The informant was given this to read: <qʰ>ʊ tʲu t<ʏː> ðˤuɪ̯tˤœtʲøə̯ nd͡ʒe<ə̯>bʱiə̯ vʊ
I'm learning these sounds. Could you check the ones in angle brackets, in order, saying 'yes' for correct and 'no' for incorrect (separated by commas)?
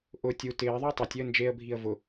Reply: no, no, yes